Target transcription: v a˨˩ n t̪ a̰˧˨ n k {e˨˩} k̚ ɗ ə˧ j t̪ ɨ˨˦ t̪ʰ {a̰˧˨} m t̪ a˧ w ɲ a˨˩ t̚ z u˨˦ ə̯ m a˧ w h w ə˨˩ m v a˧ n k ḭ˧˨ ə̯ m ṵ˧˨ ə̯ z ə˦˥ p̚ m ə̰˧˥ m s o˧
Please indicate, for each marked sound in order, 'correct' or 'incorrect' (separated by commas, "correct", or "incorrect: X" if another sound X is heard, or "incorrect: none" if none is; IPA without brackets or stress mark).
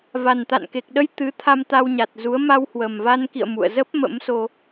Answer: correct, incorrect: a˧